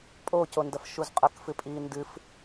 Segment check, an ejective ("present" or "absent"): present